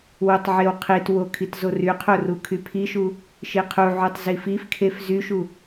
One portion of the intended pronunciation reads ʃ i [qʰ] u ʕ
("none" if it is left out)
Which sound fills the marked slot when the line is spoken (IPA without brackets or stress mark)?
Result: qʰ